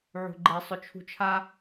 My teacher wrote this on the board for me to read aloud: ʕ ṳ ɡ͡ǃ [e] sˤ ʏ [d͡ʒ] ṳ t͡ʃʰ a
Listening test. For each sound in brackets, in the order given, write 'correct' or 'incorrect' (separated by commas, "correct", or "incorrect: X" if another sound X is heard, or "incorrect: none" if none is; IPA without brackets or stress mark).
correct, incorrect: t͡ʃʰ